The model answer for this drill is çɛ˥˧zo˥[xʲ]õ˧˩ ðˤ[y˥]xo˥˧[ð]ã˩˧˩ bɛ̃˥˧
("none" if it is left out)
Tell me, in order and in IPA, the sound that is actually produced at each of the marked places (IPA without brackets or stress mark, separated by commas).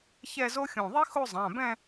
xʲ, i˥, zˤ